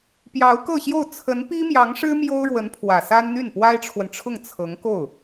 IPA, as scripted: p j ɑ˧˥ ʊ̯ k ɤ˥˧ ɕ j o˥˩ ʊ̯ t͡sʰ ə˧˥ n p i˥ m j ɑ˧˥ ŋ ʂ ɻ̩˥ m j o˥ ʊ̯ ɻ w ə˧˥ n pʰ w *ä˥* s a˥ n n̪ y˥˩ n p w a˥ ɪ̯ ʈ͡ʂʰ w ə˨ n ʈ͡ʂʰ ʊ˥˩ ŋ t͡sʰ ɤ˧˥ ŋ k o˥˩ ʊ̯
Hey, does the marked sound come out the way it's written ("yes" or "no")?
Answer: no